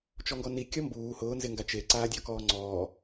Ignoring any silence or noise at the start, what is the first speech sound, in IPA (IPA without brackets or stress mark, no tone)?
t͡ʃ